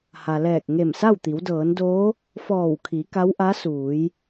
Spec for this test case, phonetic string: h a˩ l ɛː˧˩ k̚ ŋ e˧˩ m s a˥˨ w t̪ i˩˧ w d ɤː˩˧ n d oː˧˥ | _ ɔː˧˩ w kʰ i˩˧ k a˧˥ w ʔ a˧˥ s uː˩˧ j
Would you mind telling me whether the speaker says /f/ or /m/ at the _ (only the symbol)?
f